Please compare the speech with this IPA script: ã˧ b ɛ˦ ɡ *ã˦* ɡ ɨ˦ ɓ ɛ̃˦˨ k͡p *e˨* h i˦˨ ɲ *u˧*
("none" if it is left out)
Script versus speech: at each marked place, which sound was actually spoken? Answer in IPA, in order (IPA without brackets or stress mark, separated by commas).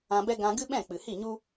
ã˧, ɨ˨, u˦